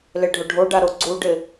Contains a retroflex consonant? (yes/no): yes